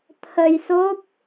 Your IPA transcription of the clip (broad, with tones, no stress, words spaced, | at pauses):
t̪ʰə˧jso˦˥p̚